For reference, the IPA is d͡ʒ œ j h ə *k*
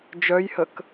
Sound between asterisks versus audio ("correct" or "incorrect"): correct